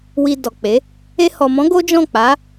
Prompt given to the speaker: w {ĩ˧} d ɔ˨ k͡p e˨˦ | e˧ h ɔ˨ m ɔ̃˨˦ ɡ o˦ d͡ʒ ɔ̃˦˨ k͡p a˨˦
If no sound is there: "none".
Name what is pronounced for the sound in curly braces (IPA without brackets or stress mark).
i˧